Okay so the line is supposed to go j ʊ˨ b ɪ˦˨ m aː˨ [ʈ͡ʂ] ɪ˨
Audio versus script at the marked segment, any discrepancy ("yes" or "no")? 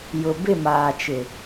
yes